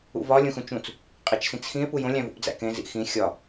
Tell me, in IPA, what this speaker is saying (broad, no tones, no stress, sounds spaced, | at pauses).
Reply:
ṵ v ɒ lʲ ũ x ũ t͡ʃ ũ t͡s | qʼ i t͡ʃ s ĩ t͡s x ĩ e̯ p u j õ lʲ æ̃ v ṵ p d͡z æ̰ k ẽ z ḭ x ĩ xʲ ɒ